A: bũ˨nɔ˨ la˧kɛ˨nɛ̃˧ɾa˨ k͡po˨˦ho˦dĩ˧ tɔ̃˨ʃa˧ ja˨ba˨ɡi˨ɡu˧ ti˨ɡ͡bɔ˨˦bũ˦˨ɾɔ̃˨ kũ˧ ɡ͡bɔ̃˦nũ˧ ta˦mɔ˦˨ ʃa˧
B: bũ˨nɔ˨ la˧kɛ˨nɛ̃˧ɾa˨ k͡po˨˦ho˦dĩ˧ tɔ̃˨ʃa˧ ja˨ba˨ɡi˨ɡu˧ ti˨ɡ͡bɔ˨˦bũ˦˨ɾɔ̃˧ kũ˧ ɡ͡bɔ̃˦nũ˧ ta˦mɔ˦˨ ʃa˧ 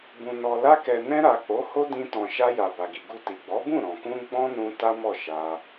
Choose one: A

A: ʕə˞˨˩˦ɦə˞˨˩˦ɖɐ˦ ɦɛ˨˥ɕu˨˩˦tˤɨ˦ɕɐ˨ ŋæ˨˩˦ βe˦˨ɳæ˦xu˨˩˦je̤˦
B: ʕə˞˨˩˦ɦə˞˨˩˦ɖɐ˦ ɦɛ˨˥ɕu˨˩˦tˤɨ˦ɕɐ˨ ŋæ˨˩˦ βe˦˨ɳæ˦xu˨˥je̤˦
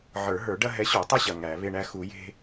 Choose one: A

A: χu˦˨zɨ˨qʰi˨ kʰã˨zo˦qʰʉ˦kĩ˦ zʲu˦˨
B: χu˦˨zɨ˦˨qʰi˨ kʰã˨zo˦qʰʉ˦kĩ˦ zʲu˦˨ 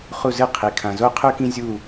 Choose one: B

